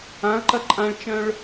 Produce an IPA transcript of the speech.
ãɐ̯ǃɐ ǃʼãɭt͡ʃœ̃ɭ

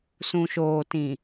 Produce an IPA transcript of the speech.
sũ˨ʃoː˨tĩ˨

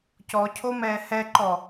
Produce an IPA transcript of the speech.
cɔcʰo mɛːhɛǃɔ

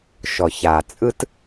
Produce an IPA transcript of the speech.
ʃɔ˨ça˨t͡sʼɯ˦t

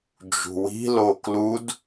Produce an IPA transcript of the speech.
d͡ʒṳwi̤lo klud

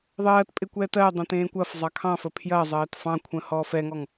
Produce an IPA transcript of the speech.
ðˤɜːtpʼɪ kʷɛːtɜdˤə̃ tẽːkʷɐfzˤɑ kʰɑ̃fə pʰjɐzˤɜːt fɑ̃ kʷʰə̃hɔfɛŋɔŋ

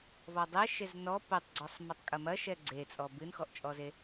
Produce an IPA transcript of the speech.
vɔdˤɛ ʃeznɔ potˤɡ͡ǀɔsˤ mɐtˤkʼɐmɐ ʃɛɡ͡ǀet͡sʼɔ bɨnxɔʔt͡ʃʼɔze

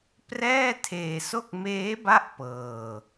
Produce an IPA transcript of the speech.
prɛː˥˩tʰeː˧so˥˩k̚ meː˦˥ba˦˥ʔ pɤː˧

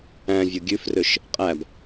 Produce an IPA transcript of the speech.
æ̃vʲo ɡʲʉfrøʃ | qʼæb

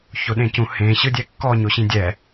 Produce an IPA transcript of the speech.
çoɗẽcũ hẽ ɕɯdʲɛkːɔ ɲoɕĩdʲɛ

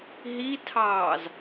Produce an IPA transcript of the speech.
ɦitʰɑːz

